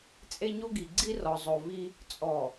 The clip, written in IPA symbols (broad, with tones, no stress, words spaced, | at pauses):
t͡sʼe˦ɲo˦ɡi˨ɡ͡ǀi˦ rɔ˨zˤo˨vi˦ | t͡sʼɔ˨